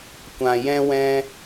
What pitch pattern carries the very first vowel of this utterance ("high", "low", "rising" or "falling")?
low